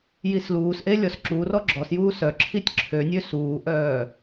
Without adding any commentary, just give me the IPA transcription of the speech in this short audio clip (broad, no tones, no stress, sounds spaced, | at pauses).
j i s l uː s ʔ e lʲ ɔ s ǁ u r ɔ ɡ͡ǁ ɔ s j uː s œ ǁʰ i tʲ ǁʰ ø nʲ ø s uː ʔ œː